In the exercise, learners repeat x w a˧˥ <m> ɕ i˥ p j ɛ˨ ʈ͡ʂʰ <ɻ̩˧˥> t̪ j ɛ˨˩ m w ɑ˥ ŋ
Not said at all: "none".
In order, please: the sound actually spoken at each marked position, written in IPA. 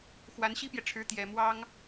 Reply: n, ɻ̩˧˥

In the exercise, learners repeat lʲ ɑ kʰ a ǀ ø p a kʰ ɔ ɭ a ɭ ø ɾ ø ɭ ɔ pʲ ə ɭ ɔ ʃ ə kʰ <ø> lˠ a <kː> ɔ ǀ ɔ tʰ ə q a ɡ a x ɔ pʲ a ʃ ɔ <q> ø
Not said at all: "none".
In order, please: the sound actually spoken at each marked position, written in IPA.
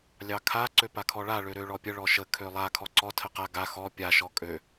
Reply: ø, kʰ, kʼ

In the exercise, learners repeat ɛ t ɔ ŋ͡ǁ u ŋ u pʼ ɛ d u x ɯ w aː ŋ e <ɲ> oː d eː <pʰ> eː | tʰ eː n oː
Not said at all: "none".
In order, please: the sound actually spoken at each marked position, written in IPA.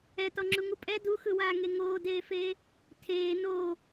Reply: ŋ, f

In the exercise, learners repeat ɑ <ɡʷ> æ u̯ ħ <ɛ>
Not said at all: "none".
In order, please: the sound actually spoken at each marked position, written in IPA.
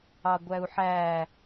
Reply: ɡʷ, æ

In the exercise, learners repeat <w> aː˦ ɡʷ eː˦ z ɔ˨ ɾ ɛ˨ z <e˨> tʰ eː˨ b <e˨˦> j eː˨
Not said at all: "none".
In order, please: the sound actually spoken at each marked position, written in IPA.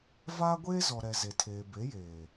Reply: v, e˨, e˨˦

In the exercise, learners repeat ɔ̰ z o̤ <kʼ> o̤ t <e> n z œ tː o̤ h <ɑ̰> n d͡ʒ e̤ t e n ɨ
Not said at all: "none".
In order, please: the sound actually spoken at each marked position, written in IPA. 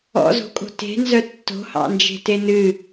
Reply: kʼ, e̤, ɑ̰

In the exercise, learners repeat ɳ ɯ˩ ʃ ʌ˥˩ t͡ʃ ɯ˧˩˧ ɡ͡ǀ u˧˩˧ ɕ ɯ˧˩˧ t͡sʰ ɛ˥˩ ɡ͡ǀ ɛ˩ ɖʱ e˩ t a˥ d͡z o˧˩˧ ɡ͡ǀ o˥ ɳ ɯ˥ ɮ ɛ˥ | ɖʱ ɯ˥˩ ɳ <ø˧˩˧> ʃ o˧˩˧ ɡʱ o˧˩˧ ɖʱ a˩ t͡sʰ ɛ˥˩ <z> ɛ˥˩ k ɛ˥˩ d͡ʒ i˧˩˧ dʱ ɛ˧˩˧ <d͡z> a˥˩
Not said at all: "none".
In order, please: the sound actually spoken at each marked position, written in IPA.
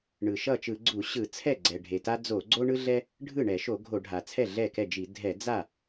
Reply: ɛ˧˩˧, ɮ, d͡z

